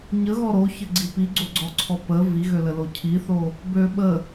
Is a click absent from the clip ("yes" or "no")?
no